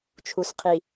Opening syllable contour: low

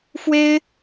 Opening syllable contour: high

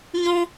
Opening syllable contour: high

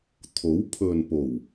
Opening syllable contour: rising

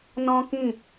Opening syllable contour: high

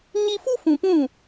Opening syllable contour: high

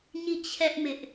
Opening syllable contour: falling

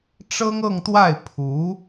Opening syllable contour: high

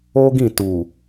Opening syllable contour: high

